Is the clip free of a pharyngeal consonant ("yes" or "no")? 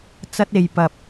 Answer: yes